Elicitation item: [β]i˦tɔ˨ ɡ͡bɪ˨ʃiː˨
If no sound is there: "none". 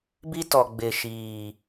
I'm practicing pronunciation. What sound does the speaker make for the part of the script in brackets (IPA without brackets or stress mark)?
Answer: b